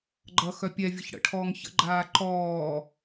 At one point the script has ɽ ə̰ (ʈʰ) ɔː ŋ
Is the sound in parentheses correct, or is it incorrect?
correct